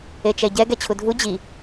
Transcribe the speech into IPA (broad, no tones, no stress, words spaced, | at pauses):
et͡ʃɛɟɛ ɡɛt͡ɕʰudʱu d͡ʑi